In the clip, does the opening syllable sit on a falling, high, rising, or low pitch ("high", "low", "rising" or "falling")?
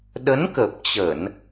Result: rising